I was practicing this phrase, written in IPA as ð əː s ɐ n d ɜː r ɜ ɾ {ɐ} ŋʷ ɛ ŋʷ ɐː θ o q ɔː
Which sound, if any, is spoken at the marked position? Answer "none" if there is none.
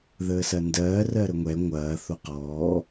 ə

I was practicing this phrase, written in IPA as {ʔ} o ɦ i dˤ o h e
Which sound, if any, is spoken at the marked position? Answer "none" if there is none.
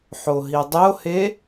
ħ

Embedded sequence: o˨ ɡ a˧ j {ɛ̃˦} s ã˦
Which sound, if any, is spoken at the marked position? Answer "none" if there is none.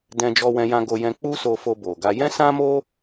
ɛ̃˦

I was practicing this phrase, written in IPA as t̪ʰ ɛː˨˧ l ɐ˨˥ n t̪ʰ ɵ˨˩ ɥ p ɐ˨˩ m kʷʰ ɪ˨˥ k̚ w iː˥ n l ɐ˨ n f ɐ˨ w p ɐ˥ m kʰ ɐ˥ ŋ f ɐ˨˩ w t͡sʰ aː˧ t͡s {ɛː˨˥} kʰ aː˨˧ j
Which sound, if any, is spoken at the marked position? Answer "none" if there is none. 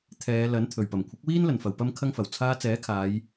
ɛː˨˥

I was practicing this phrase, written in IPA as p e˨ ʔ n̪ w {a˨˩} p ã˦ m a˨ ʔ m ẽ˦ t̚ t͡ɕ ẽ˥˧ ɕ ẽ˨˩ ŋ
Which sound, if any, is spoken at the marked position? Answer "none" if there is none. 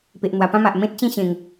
a˨˩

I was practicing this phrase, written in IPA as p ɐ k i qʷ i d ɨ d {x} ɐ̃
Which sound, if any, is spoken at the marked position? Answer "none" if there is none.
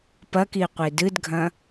ɡʱ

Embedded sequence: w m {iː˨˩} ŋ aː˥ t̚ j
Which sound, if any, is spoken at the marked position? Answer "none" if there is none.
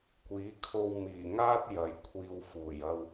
iː˨˩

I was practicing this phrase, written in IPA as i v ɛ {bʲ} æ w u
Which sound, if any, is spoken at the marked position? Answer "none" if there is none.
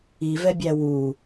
bʲ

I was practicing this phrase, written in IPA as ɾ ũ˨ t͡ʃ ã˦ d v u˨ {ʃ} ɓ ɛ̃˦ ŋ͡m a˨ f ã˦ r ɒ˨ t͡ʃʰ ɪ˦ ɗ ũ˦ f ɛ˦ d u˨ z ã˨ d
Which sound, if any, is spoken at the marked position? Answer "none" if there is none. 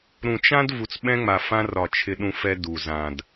t͡s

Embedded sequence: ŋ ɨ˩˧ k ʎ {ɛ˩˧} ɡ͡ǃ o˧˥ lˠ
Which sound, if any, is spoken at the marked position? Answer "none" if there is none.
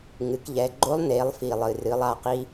ɛ˩˧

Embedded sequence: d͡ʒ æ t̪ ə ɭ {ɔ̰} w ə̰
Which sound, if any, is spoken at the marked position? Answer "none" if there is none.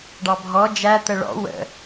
ɔ̰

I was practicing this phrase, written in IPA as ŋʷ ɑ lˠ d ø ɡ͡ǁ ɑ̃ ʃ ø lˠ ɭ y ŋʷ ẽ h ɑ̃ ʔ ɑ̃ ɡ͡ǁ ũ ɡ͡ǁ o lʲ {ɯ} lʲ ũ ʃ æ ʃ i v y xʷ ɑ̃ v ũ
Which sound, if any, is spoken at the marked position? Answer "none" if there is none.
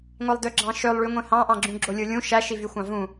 ɯ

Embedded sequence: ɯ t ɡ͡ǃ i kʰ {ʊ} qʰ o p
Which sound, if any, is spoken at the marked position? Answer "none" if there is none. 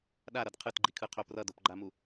ɯ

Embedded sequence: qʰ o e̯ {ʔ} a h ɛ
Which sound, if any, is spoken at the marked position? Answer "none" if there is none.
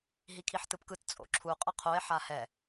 ħ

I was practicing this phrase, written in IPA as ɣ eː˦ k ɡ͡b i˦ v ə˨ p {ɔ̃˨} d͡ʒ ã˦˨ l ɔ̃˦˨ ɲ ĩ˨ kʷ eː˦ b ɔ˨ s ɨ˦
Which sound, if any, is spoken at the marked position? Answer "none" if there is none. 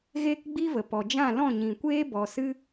ɔ˨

